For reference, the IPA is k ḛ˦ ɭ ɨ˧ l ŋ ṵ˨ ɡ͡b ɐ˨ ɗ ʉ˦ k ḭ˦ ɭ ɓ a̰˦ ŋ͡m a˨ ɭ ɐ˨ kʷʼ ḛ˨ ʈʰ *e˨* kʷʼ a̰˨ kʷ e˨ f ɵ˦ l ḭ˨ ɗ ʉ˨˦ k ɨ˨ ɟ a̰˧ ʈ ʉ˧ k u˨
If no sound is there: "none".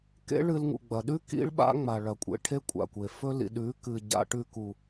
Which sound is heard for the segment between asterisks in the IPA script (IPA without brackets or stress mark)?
e˦